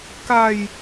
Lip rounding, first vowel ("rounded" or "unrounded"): unrounded